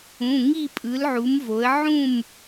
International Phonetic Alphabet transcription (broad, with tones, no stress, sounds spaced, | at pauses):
ũ˩˧˩ ŋ i˥˨ pʼ ɯ˨˥ l ʕ u˨˥ m v o˨˥ ə̯ ʕ ũ˥˨ m